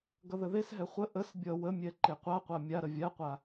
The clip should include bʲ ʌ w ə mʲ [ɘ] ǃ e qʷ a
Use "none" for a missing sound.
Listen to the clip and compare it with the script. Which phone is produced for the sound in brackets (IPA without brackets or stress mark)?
ɛ